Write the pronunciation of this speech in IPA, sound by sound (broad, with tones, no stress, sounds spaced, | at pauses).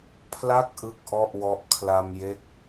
pʰ l a˥˩ k̚ ʔ ɯ˥˩ k̚ ʔ ɔ˥˩ ʔ w ɔ˦˥ ʔ kʰ l a˧ m j e˦˥ k̚